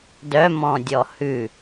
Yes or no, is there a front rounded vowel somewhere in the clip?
yes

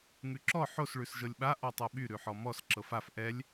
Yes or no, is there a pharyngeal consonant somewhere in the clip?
yes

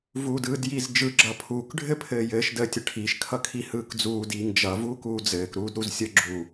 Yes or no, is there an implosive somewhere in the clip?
no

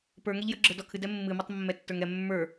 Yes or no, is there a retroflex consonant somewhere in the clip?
no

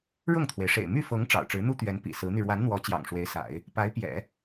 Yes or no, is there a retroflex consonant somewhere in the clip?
yes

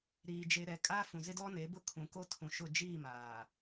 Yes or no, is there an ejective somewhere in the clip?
yes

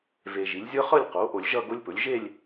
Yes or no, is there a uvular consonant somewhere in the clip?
yes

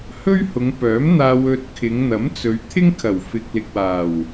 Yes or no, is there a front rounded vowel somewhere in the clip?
yes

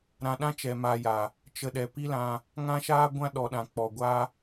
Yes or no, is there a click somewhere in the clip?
no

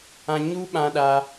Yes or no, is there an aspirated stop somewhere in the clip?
no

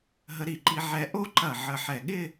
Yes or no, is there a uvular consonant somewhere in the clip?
no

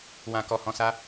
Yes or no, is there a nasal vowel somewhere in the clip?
yes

